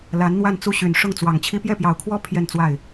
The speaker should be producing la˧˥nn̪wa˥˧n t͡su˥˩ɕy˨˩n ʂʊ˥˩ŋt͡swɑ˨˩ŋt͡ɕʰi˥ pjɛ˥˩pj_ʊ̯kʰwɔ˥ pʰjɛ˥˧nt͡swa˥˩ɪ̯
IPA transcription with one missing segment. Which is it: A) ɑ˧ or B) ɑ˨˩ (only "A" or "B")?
B